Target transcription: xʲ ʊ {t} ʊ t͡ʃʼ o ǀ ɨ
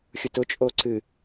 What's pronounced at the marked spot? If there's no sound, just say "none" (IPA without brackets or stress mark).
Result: t